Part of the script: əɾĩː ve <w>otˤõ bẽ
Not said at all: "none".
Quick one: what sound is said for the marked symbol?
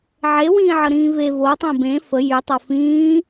v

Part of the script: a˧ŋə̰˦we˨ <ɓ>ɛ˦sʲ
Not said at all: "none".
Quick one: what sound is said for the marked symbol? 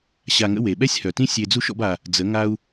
ɓ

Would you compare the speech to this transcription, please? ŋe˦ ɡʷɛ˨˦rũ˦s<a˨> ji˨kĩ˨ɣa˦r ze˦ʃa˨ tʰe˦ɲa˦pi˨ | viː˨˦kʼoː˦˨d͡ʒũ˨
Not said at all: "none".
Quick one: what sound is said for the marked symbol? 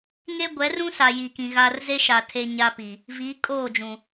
a˨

